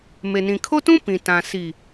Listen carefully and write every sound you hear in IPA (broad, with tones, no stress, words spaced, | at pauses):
me˨nĩ˨kʰo˦tũ˦ pĩ˨tã˨ si˨